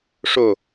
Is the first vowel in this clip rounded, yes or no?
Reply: yes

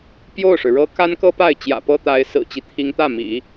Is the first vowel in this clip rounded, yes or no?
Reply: yes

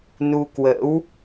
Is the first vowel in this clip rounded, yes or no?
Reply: yes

